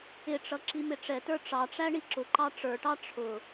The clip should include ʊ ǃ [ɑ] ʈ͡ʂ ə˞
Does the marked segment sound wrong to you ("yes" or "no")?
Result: no